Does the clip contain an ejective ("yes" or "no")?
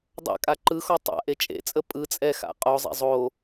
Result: yes